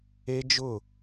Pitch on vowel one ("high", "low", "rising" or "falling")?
high